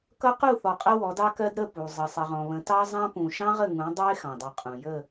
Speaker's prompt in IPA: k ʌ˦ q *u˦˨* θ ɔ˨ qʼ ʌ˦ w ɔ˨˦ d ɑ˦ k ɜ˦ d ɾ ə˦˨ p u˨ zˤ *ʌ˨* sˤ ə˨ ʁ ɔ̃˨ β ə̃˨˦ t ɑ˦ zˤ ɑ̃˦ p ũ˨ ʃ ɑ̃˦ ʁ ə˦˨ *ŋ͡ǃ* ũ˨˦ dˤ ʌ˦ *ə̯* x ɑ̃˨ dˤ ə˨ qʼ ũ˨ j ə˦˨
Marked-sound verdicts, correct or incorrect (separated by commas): correct, incorrect, incorrect, incorrect